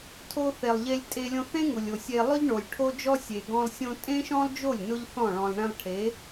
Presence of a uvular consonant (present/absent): absent